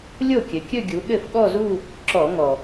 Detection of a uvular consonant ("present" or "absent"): absent